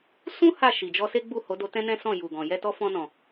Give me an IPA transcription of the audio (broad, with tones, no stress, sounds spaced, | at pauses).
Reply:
s ũ˦ h a˦˨ ʃ i˨ d͡ʒ ɔ˧ s e˦ ɡ͡b u˦˨ h o˨˦ d o˧ t ɛ̃˦ n ɛ̃˦ s ɔ̃˦˨ j u˨ ɡ ɔ̃˨ j ɛ˧ t ɔ˧ f ɔ̃˧ n ɔ̃˨